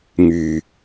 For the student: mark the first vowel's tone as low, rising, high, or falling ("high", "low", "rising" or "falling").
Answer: low